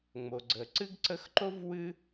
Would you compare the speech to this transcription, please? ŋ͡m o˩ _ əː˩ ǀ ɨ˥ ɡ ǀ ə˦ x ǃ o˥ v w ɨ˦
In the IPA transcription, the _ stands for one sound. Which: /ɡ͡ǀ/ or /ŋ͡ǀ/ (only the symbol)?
ɡ͡ǀ